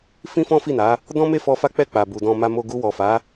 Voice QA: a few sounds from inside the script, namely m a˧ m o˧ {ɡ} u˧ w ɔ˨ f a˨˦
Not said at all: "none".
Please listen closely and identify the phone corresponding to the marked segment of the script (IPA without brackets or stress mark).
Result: ɡ